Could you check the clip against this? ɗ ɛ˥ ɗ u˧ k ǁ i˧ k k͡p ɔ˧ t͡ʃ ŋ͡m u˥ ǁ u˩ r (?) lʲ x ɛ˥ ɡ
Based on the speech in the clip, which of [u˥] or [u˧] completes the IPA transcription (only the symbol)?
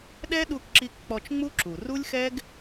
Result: u˥